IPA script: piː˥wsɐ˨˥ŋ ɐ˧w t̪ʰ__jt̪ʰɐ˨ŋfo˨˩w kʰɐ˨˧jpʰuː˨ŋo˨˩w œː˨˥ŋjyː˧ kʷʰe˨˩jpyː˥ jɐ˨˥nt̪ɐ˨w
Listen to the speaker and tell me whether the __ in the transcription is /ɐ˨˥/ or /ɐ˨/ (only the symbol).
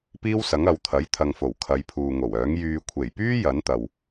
ɐ˨˥